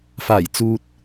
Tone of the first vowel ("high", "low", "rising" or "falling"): low